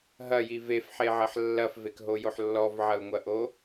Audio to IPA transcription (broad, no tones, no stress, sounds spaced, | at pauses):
ɦ ɐ j i v e f ħ e ʕ ɐ ħ lː ɐ f v e k ɦ o j o ħ lː ɔ v ʕ ɐ u̯ ŋʷ ɐ ʔ o